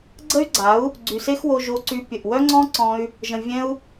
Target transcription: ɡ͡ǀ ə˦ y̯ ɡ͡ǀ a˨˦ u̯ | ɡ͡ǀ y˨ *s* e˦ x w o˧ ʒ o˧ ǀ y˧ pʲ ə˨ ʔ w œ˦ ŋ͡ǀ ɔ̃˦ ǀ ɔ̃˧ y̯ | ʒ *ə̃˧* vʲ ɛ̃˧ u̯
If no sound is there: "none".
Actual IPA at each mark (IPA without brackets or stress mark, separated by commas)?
s, ə̃˨